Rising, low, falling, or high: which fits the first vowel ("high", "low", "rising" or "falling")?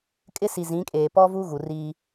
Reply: high